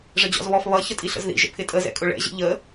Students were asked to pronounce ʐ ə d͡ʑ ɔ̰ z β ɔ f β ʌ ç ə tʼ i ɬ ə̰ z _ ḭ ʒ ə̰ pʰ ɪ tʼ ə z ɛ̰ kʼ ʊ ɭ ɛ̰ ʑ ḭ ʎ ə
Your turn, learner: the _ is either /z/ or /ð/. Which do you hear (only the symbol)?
ð